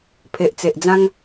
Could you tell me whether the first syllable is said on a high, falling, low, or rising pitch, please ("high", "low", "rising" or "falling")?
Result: low